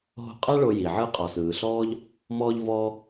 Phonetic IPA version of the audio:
ɦ o̤˧ qʼ a˦ ɭ o˧ j i˨ ʕ ɯ˦ qʼ ɔ˨ s ɯː˨ ɬ ɔː˦ ʎ | m ɔː˧ ʎ v ɔː˧

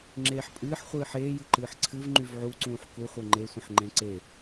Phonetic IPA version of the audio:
ŋ͡ǁ eː ħ pʼ ɨː ħ χʷ ɨː ħ eː j ɨ ǃ ɨː ħ ǀʰ ɨ v ŋ͡ǃ y v ʕ u ǀ ũː ħ k u χʷ e ŋ͡ǃ e sʷ ə̃ ħ ŋ͡ǃ ẽ ǀ e

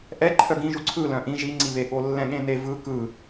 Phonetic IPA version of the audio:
ʔ ɛ ǃʰ œ ɡ ĩ ʒ u ǀʰ ɯ l œ̃ ʔ ĩ ʒ i ŋ͡ǀ i β e ɠ o lː ɛ̃ ɠ ẽ n e v ɯ k ɯ

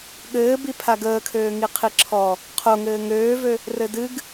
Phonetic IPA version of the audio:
ɠ ɘː b i pʰ a ɡ əː kʰ øː ŋ i qʰ i ǁʰ ɔ | qʰ o ŋ ɘː ŋ øː v ø | r ɘ d ɨ ɡ

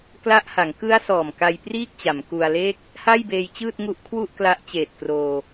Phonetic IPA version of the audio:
k l a˦˥ ʔ h a˩˦ ŋ k ɯ˦˥ a̯ s ɔː˨˩ m k a˧ j p r iː˥˩ k̚ t͡ɕ a˩˦ m k u˧ a̯ l eː˥˩ k̚ | h a˥˩ j b eː˧ j t͡ɕ ɯː˥˩ t̚ ŋ u˦˥ ʔ kʰ w u˥˩ ʔ k l a˦˥ ʔ t͡ɕ eː˨˩ t̚ k r oː˧

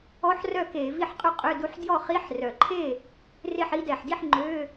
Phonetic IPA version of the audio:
ɔ˧˥˧ ħ r œ˥˩ k e˧˩˧ v i˥˩ ħ qʼ y˥˩ qʼ ø˧˥˧ d u˧ ħ d j ɔ˥˩ χ i˧˥˧ ħ r œ˨˩ ǃʰ e˥˩ | r e˥˩ ħ i˧ d ɛ˨˩ ħ d i˥˩ ħ ŋ͡ǃ ø˧˥˧

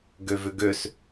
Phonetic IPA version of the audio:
ɡ ø v ʏ ɡ ø s

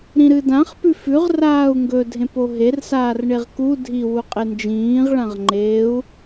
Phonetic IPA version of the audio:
ɾ ĩ ɾ ɨ d ã χ p ʉ f ʉ ʁ r aː u̯ ŋ ɡ ɵ dʱ ẽ p o ɦ e r s aː r ɳ e ʁ k u dʱ i w u qʼ e n d͡ʒ ĩː ʁ ɭ ã ʁ ŋ͡ǃ e u̯

